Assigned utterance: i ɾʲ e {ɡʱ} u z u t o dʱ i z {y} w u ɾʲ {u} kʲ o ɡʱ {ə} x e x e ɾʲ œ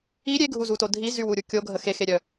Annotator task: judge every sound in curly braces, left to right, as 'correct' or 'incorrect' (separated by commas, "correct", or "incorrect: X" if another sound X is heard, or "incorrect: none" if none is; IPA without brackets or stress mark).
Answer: correct, correct, correct, correct